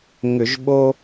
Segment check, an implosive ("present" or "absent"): present